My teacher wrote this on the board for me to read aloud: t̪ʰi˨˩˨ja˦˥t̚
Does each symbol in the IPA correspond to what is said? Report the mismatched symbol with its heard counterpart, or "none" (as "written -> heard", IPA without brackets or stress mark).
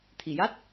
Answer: none